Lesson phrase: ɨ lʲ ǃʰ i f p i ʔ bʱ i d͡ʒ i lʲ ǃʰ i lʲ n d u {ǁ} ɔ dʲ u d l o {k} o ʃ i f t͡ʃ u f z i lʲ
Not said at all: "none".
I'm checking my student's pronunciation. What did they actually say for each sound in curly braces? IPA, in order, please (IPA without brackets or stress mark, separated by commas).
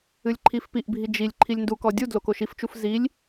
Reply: k, k